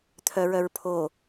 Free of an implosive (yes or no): yes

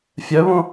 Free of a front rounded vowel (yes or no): no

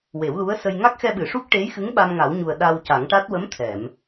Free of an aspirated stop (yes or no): no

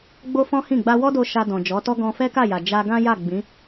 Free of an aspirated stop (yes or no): yes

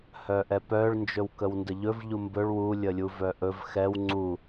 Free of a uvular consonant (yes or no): yes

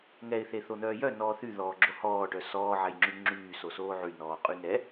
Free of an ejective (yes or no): no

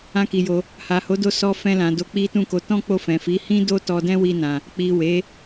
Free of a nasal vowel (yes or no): no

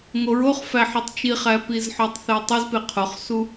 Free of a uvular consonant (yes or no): no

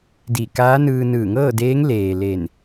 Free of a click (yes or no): yes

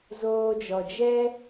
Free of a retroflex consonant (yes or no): yes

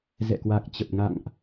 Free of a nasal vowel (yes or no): yes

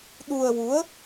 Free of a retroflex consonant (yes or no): yes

